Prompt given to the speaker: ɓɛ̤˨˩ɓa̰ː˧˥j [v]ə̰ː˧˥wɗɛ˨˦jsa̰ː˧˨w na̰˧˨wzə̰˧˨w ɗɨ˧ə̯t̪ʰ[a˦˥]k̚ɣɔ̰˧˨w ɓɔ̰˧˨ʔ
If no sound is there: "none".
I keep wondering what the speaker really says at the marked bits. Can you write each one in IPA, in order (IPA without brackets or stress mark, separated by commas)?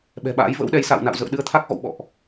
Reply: v, a˦˥